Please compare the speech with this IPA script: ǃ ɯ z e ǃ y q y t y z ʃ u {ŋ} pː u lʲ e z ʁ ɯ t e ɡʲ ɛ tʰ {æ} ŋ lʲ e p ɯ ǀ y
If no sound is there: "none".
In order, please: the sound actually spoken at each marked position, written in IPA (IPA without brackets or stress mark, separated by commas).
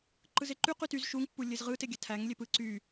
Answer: ŋ, æ